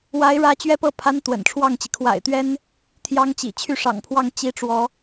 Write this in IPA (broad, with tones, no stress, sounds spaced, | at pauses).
w a˧˥ ɪ̯ ɻ ä˧˥ t͡ɕ ɥ ɛ˥ p ɤ˥˩ pʰ a˧˥ n t̪ w ə̰˨˩ n ʈ͡ʂʰ w ɑ˥˩ ŋ t͡ɕ i˩ kʰ w a̰˨˩ ɪ̯ t̪ ɥ ɛ˥ n | t̪ʰ j ɑ˥ ŋ t͡ɕ ḭ˨˩ t͡ɕʰ y˥˩ ʂ ɑ̰˨˩ ŋ pʰ w ɑ˥˩ ŋ t͡ɕ i˧˥ ʈ͡ʂ w ɔ˧˥